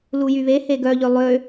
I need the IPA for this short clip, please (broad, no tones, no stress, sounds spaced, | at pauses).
l u j y β e h e ɡ œ ʎ ø lˠ ø